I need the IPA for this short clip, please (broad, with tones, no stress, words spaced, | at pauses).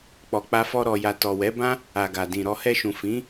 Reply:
k͡pɔ˨k͡pa˧fɔ˧ ɾɔ˨ja˨ tɔ˨wɛ˨˦bã˦ | a˨ɡa˨dĩ˨ ɾɔ˧ hɛ˧ʃũ˨ fĩ˨˦